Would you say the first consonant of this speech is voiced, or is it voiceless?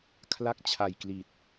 voiceless